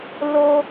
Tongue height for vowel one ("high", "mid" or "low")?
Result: mid